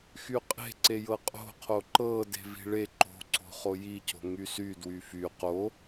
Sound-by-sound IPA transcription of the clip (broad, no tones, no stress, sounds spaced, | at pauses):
x y qʼ e̤ ǀ e j ɤ qʼ o̤ qʰ o ǃ ɤ d e̤ v i̤ ɭ e ǃ o̤ ǀ o̤ χ o j i c o̤ ŋ y s y d w y f y q o